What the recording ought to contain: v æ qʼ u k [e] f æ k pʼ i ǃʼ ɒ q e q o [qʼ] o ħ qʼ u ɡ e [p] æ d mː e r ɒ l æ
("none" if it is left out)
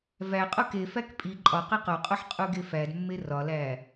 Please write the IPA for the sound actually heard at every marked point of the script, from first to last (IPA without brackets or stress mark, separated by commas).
e, qʼ, f